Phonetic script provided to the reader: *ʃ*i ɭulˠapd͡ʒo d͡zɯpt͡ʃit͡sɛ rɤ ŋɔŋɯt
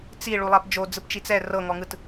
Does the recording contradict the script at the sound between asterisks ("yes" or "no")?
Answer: yes